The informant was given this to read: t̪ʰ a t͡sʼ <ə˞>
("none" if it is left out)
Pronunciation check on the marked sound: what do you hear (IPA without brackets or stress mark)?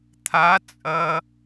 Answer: ɐ